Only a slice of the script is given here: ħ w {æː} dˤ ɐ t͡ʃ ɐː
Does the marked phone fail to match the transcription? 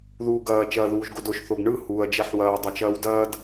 yes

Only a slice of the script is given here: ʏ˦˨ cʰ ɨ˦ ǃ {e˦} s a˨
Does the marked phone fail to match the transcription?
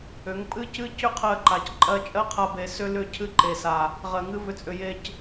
yes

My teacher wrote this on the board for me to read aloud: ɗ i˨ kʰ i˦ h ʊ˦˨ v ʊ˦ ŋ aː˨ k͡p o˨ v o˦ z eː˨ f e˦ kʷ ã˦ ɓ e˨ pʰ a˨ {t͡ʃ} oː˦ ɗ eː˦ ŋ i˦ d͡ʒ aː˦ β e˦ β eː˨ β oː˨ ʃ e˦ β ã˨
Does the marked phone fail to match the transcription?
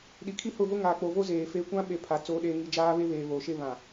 yes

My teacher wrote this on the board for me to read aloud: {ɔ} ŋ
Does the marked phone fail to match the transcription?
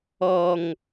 no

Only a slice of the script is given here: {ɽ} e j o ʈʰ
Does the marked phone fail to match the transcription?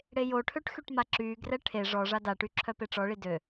no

